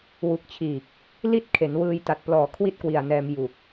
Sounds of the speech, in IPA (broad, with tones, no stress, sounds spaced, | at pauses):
w u˨˩ k̚ t͡ɕʰ iː˨˩ k̚ | l i˥˩ t̚ kʰ e˩˦ n w ɯː˧ j t a˨˩ t̚ p l ɔː˨˩ kʰ w i˥˩ t̚ k w i˨˩ a̯ n ɛː˧ m j u˨˩ k̚